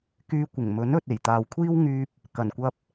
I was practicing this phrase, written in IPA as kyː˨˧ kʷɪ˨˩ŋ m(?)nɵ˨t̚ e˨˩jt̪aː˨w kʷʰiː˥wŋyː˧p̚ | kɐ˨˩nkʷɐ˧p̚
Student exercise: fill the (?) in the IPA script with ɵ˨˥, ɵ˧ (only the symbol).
ɵ˨˥